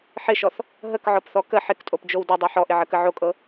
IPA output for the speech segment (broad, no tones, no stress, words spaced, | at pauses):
ħɪʃɔθ | ɦəkʕɔpθɔ kə ħɪktʼopd͡ʒow dɤdˤɤ ħɔʔɪʕəkə ʕokʼɤ